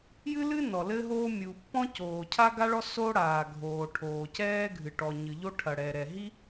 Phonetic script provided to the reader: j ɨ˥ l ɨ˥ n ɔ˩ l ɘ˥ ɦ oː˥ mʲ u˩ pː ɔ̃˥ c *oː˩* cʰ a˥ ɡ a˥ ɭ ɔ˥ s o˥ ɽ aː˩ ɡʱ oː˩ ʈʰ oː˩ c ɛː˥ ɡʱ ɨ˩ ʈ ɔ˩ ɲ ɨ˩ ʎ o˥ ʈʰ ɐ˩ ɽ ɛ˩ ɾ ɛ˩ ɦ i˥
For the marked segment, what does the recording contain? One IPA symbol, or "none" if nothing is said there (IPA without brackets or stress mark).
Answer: oː˩